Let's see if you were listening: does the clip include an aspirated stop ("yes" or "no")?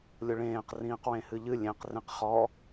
no